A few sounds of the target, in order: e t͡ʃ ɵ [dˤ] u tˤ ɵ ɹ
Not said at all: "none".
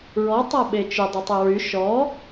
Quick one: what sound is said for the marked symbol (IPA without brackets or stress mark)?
dˤ